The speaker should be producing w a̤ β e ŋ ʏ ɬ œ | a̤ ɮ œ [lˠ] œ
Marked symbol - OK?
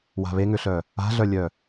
no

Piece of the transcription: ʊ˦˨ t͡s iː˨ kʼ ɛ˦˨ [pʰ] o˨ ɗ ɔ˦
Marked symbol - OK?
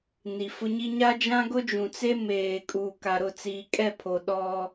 yes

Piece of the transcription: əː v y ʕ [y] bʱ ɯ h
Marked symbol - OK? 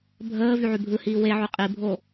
yes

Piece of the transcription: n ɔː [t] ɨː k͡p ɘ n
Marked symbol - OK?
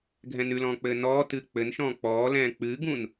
yes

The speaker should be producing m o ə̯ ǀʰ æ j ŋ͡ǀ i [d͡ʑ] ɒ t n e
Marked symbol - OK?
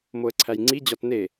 yes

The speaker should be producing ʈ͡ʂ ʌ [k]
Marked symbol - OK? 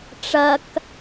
yes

